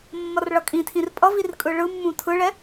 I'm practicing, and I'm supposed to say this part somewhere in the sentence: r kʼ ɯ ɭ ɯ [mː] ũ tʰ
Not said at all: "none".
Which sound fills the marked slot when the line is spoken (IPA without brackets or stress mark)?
mː